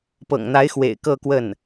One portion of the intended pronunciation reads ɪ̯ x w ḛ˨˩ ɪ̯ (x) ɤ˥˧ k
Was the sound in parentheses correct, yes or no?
no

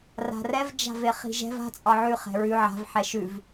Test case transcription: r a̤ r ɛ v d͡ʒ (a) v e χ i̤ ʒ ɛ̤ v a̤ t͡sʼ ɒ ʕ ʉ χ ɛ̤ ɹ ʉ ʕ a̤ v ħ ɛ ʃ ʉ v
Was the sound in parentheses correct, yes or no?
no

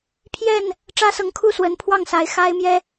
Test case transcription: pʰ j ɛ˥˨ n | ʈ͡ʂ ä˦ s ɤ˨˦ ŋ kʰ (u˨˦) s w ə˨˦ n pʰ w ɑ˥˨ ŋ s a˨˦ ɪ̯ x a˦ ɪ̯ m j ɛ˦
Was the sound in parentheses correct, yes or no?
no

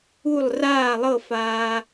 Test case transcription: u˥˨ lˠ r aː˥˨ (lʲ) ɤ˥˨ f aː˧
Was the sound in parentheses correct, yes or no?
no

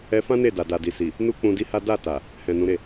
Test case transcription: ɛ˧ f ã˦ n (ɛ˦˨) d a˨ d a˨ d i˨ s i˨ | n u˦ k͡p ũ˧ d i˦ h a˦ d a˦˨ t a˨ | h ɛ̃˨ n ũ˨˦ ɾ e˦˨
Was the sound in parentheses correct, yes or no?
no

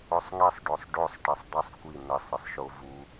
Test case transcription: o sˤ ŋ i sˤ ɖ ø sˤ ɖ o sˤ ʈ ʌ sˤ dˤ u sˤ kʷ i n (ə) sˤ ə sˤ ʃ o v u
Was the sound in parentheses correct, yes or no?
yes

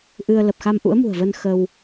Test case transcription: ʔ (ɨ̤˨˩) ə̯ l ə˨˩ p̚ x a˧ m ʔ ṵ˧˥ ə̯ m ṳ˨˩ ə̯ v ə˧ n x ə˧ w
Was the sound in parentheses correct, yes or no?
no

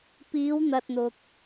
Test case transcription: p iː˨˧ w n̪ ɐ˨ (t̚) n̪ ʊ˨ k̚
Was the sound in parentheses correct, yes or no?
yes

